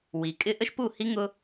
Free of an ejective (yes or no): no